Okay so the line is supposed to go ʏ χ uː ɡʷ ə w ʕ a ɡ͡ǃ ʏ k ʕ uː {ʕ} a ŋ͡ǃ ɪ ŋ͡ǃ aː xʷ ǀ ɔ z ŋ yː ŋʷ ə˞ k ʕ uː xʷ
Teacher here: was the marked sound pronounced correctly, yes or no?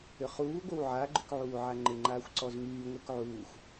yes